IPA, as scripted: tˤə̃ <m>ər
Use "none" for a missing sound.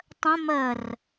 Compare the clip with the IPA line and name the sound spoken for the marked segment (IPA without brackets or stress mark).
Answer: m